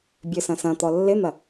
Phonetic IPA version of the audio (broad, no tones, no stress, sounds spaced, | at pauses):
bʲ ø s ɐ̃ s ɐ̃ t̪ ɔ lː ɪ n̪ ɐ